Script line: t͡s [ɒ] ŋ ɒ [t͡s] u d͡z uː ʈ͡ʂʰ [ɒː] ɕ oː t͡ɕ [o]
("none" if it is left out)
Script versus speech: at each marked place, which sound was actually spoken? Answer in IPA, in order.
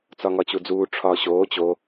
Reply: ɒ, t͡ɕ, ɒː, o

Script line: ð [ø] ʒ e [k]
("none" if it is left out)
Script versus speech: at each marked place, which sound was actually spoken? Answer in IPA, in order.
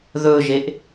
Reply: ɵ, ʔ

